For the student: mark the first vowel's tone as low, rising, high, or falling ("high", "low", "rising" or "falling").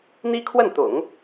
high